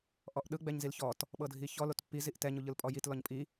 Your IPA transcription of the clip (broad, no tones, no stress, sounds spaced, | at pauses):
ʔ ɔ ʔ ɗ ɯ ɡ͡b ɛ ɲ z i l ç ɔ t | ɓ ɤ dʱ i ç ɔ l o t pː i z i ʔ t ɛ ɲ u ʎ ɯ l pʼ ɔ j i t l ɔ ɲ pʼ i